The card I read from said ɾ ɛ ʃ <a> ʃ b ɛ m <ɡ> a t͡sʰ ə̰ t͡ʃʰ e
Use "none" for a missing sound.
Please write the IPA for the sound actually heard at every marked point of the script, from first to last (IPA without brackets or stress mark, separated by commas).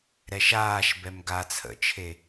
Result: aː, ɡ